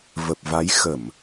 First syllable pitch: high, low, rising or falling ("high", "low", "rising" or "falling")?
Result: low